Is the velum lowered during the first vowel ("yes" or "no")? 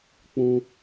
yes